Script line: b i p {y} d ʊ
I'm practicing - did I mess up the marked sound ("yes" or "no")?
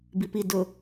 yes